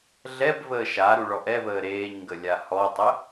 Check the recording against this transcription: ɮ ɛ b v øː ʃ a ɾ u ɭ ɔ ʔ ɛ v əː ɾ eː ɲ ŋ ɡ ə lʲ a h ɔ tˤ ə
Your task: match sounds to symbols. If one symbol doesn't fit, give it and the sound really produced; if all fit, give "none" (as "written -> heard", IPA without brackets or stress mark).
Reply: øː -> əː